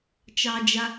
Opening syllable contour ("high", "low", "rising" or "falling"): high